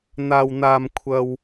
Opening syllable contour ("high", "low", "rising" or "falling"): high